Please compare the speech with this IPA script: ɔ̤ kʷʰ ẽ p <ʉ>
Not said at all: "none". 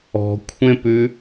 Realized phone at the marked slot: ʉ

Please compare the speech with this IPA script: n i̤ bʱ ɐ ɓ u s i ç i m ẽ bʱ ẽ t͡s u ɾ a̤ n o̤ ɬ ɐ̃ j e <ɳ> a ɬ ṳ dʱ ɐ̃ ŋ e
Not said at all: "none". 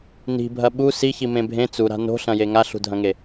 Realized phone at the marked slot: ŋ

